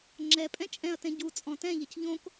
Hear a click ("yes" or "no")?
yes